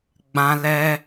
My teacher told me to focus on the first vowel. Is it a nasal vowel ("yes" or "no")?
yes